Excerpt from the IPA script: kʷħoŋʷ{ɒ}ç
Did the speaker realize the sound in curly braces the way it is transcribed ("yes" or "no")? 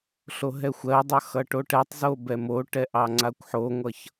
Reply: no